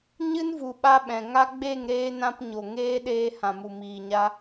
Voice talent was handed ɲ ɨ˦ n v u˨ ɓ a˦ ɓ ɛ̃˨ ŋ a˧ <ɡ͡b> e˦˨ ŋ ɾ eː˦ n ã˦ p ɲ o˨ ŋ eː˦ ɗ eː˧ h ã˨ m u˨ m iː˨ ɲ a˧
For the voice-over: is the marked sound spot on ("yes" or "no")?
yes